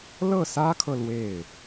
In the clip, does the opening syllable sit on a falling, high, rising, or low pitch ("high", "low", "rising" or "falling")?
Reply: falling